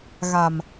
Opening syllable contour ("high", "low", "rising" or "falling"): low